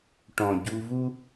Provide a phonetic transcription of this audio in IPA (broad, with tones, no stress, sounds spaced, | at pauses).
ʈ ɔ̃˨ ɟ u˧ v u˦